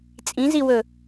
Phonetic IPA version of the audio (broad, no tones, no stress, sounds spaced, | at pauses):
t͡sʼ ĩ z i w ɵ